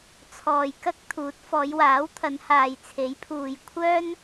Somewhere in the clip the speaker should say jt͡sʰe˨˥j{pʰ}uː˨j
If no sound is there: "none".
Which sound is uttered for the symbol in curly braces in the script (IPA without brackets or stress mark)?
pʰ